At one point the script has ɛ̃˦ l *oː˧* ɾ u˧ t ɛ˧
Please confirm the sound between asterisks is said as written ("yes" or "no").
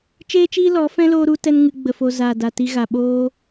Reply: yes